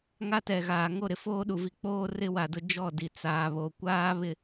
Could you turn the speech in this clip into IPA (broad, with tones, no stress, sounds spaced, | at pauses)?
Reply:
ŋ a˦ t ɛ˨ ɣ aː˨ ŋ o˦˨ ɾ ɪ˨ f oː˦ ɗ u˨ v i˦ k͡p oː˦ r ɪ˦ w a˨ d ʊ˦ d͡ʒ ɔ˦˨ d i˨ t͡s aː˨ β o˨ kʷ aː˦ β ɪ˦